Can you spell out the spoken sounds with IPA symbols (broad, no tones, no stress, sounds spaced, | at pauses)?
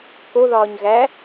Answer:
k o ð ɒː ɲ ɣ æ